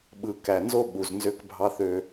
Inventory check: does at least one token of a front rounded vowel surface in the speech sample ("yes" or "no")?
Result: yes